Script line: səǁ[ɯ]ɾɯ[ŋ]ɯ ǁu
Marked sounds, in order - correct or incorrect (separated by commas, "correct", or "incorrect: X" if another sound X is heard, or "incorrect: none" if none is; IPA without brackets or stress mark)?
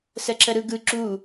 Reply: incorrect: ə, incorrect: ɡ